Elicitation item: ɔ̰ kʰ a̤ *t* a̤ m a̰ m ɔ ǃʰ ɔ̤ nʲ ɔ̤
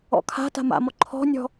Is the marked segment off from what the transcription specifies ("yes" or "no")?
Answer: no